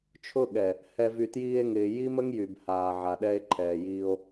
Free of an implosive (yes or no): no